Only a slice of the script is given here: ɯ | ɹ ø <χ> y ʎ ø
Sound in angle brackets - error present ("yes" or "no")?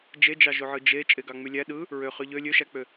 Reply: no